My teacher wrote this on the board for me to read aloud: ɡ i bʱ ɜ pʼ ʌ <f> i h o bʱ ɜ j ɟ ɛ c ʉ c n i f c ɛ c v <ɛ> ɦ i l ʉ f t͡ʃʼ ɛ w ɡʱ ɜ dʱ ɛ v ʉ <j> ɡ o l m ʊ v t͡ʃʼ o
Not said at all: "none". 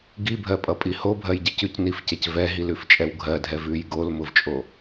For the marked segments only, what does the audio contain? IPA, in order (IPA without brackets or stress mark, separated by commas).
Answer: pʼ, ɛ, j